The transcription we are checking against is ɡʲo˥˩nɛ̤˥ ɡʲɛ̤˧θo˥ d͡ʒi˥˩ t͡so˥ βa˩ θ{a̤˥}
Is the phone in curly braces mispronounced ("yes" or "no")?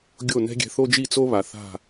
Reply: yes